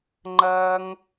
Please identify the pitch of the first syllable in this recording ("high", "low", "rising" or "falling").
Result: high